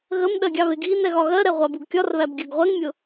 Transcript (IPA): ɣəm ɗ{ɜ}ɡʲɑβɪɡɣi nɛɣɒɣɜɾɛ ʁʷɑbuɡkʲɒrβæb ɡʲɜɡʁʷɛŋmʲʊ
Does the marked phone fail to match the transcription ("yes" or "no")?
no